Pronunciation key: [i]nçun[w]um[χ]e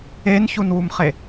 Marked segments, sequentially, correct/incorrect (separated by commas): incorrect, correct, correct